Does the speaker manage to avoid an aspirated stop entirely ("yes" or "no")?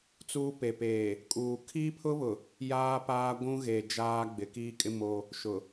no